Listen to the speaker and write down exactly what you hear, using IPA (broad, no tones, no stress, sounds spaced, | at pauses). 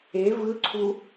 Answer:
e v ɯ ǀʰ u